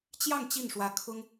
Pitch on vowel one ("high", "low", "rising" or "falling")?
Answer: falling